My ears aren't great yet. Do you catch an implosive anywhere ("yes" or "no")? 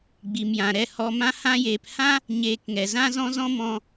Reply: no